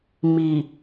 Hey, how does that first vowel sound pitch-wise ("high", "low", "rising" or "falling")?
low